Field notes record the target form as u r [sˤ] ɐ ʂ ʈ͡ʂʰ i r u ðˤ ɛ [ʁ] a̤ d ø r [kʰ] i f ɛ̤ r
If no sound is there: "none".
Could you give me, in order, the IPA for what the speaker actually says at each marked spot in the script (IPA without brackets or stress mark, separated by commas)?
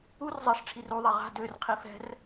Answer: zˤ, ʁ, qʰ